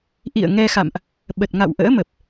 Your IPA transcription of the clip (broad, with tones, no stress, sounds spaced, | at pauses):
ʔ ḭ˧˨ ə̯ ŋ ɛ˧ x a̰˧˨ m ʔ | ɓ ə˨˩ t̚ ŋ a̰˧˨ w ʔ ə̰ː˧˥ m ə˨˩ p̚